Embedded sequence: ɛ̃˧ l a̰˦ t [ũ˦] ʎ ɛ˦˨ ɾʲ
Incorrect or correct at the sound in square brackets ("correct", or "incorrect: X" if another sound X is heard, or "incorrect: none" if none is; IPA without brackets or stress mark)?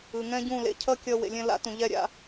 incorrect: ũ˨